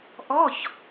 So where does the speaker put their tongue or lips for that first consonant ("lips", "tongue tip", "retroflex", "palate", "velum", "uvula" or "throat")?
throat